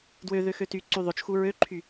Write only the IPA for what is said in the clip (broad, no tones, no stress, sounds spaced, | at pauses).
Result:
d w ø ð ø x ø t y ǀ y ðˤ ø t͡ʃ x u ɹ ø ǃʰ y